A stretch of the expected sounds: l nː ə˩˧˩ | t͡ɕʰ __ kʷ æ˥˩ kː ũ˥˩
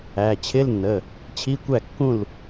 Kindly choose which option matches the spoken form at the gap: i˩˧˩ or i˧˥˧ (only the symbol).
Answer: i˧˥˧